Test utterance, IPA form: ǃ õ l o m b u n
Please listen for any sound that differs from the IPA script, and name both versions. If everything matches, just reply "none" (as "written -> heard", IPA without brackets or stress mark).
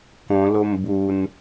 ǃ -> k